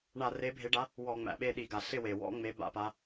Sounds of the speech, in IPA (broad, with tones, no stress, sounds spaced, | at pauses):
ɳ a˧˩˧ r e˨˥ bʱ e˨˥ ɖ a˨˥ | w ɔ˧˩˧ ŋ͡m æ̰˩ ɓ e˥˨ ɗ i˧˩˧ ɡ a˩ ɬ ɪ˥˨ w e˩ w ɔ̰˦ ŋ͡m e˨˥ b a̰˨˥ p a˨˥